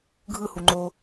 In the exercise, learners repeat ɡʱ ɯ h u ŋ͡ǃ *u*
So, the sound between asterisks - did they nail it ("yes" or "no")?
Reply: no